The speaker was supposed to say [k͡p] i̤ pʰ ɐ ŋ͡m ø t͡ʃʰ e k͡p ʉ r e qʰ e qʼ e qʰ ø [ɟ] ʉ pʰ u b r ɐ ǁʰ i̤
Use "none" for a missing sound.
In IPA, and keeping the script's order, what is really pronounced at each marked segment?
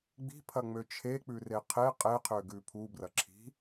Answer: ɡ͡b, ɡ

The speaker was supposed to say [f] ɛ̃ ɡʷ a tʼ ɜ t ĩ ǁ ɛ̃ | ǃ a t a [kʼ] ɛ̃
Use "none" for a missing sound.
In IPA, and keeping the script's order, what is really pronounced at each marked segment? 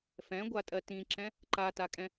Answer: f, kʼ

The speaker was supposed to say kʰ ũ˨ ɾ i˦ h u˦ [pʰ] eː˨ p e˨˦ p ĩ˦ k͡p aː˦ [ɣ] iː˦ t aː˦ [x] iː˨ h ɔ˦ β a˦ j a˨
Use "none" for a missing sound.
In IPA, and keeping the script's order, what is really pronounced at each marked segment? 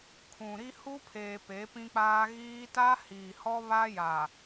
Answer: pʰ, ɣ, h

